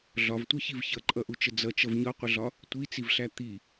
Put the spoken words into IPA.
ɮɒvtʷʌçiv çʌǃʼʌʔut͡ʃə d͡zʌt͡ʃʌv ɲɒqʷəɮɒ | tʷit͡sivɬæ t̪i

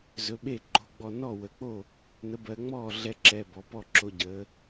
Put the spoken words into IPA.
zɵ˩˥ɓe˥˩ ǃo̤˩˧˩ɡ͡bɔ˧˩ nɔ˥˩wə˩˧k͡po˥˩ | nə˩˥bɜ˩˧ŋ͡mɔː˥˩ ɮɛ˧ǁɛ˩˧˩ bɔ˩˧pɔ˥˩ǁo˧ ɟəː˩˧

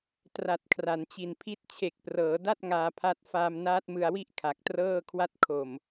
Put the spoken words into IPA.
tra˨˩t̚kʰra˩˦nt͡ɕi˨˩npʰi˦˥t̚ t͡ɕʰe˨˩k̚prɤː˩˦da˥˩t̚ ŋaː˧pʰa˦˥t̚ faː˧mnaː˦˥t̚mɯ˧a̯wi˥˩ʔ kʰa˨˩k̚trɤː˥˩ kʰwa˦˥t̚kʰo˨˩m

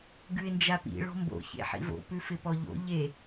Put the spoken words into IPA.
ɡʉɪ̯nd͡ʒapḭ ɭɔ̤mbo̰ çḛħḭvo̰ pʉfɪpɔʎo̰ ʎe

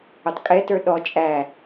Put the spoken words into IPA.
ʊtˤkʼɛtə˞ ɗɔ t͡ʃʼæ

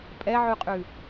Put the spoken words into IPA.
pʼɛʕʉqʼʉ

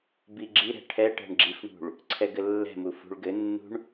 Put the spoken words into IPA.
biɡ͡ǁiɾɛ̤ ʈʰɛ ʈɛ̤ɳɡ͡ǁifɳṳɭ | ǀʰɛɡɘlːɛ̤mu fṳɭɡɘnːṳɳ

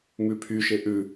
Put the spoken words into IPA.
mʉpʰyʃe ʔʉ

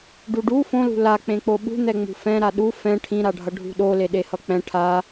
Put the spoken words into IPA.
ɖuɖu fõlṳ lak͡pẽk͡po ɓṳ n̪ɛŋ͡mṳfɛ̃ ɾaɗu fɛ̃ ʈʰĩɾaɖʱʌ ɖʱṳɗole ɗehʌk͡pɛ̃ ʈʰa

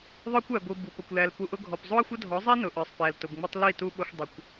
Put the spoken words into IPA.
ðˤə˞˦kʷæ˨ɡʷi˨ bu˨pə˨kʷ læ˨lpu˨ʔʊ˦ɡʱɔ˨p zˤu˦ɐ̯xʷə˦dʱɔ˨˦zˤi˦ nʊ˨ʔə˞˨sˤpæ˨l tʊ˨bŋ͡mə˦tˤ li˦˨tu˦ ɓʊ˦xʷ dˤə˨kʷ

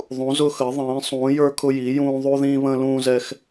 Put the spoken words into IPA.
ðˤũ˧˥zʊ˥xə˧˥ ðˤĩː˧˥ sˤũː˧˥jə˞˥kʰʊ˥ji˧˥ jũː˥ ðˤu˥ðĩː˥βə̃ː˥ lũː˥zɛ˥x

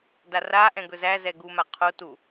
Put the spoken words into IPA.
daraʔɛ̃ ɡɵzæzɛ ɡuma qʰo tu

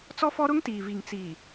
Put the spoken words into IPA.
t͡sɔ˦fɔ˦ɾʊ˦ŋtiː˨ vi˨ŋ t͡siː˨

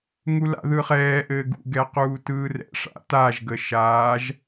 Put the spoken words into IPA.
ŋula̰ðɯχɛː ʔɘːɡṵ ɡɛquːtɯːrɛ̰ ʂa̰taʒ ɡəʃaːʒ

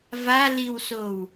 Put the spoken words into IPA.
valiwsow

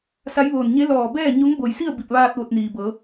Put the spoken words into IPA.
sa˧˥jʋoː˧˩n ɲe˧˥ lɔː˧˩bɛː˥˨ ɲo˧˥ŋbo˧˩jsi˥˨ə̯ bi˧˩p̚ʋaː˧t̚ ʋo˧t̚niː˩bɤː˩˧

